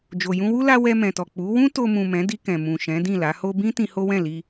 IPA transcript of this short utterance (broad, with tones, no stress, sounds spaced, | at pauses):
d͡ʒ o˨ j ũ˧ w u˦ l a˦ w ɛ˧ m ɛ̃˨ t ɔ˨ k͡p u˨˦ w ũ˦ t o˧ m ũ˨ m ɛ̃˨˦ d i˧ k ɛ̃˨ m ũ˨ ʃ ɛ̃˨˦ d ĩ˦˨ l a˨˦ h o˦ b ĩ˦ t ĩ˧ h o˦ w ɛ̃˦˨ l i˧